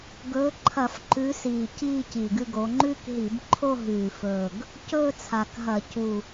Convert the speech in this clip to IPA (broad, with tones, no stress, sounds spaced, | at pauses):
ɡ ɵː˨˦ ǃʰ ɐ˧˩˧ f ǃ ʉ˨˦ s iː˨˩ c iː˥˧ c i˨˩ ɡ ɨ˥˧ ɡ o˨˦ ŋ͡ǃ ʉ˥˧ k ɦ i˧˩˧ b ǃʰ o˥˧ ɦ ʉː˨˩ f ɵː˨˩ ɡ | c ɵː˥˧ t͡sʰ a˨˩ k ɦ ɐ˧˩˧ c u˨˩